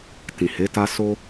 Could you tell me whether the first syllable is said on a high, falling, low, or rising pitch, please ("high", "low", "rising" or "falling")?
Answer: low